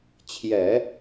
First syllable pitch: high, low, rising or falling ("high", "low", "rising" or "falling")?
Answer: low